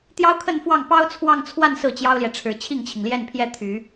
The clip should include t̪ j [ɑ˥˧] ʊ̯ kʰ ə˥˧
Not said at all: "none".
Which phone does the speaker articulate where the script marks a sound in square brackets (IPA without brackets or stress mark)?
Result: ɑ˥